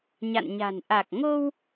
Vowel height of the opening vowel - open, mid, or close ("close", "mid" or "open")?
open